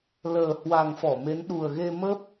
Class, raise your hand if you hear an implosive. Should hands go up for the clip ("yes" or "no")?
yes